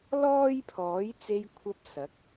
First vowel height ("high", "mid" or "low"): mid